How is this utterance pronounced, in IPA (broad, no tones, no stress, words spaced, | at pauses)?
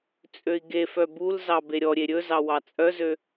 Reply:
t͡sʼøi̯ɡefœ bulzɑ beɾʲɔɾʲe ɾʲɵ zɑwɑt͡sʼœzø